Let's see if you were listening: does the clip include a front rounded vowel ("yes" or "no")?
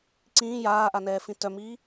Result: yes